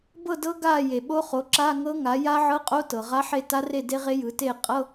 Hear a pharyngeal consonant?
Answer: yes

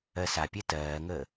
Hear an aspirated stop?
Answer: no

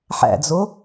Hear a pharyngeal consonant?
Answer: yes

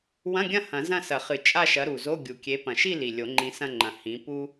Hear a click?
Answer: yes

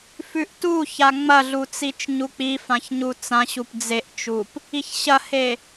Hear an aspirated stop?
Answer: no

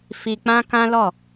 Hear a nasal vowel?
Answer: yes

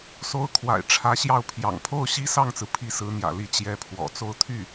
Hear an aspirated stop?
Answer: yes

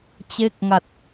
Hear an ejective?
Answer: no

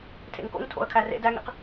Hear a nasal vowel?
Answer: no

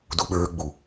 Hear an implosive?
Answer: yes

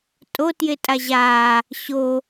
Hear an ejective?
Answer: yes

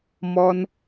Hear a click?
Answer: no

